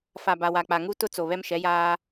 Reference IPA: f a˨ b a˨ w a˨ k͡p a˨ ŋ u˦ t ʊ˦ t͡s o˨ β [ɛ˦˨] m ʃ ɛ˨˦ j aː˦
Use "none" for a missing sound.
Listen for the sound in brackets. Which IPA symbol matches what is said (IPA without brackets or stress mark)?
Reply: ɛ˦